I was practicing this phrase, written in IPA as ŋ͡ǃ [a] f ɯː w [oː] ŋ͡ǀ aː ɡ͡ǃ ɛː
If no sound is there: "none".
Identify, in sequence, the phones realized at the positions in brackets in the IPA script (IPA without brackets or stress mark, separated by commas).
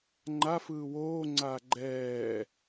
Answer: a, oː